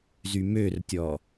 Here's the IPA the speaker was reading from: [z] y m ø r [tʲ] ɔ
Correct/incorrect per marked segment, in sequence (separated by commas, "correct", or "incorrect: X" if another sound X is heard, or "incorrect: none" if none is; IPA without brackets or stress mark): correct, correct